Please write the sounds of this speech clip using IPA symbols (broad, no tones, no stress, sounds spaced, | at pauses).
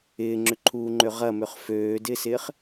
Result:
ɪː ŋ͡ǁ ʏ ǃʰ uː ŋ͡ǃ ø ʁ ɐ m ʏ χ f øː d ɪː s ɪː χ